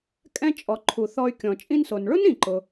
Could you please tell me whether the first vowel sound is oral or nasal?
nasal